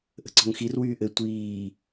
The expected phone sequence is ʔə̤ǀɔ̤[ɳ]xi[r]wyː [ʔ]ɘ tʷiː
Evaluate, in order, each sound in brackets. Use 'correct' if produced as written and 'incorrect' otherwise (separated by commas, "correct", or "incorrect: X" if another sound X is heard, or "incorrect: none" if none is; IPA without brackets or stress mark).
incorrect: ŋ, correct, correct